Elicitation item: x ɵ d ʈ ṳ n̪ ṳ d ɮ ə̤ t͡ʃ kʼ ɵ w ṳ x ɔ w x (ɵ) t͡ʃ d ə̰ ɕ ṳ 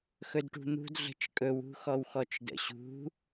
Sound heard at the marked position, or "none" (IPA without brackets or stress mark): ɔ